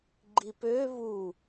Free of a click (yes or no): no